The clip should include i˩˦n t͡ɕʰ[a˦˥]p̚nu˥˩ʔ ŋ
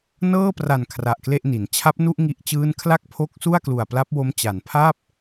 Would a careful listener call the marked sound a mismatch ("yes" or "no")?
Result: no